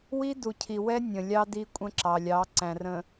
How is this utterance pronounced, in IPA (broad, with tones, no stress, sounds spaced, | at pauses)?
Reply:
w i˦ d u˨ cʰ i˨ w ɛ˦ nʲ ə̃˨ lʲ ɑ˦ d i˦ kʷʼ ə̃˦ ǁ ɑ˨ lʲ ɑ˨˦ ǀ æ̃˨ r ə̃˨